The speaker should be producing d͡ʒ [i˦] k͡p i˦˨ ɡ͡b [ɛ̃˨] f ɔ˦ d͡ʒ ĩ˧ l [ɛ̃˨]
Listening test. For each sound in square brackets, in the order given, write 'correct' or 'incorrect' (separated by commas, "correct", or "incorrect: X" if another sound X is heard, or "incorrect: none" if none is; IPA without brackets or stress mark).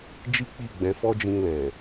correct, incorrect: ɛ̃˨˦, correct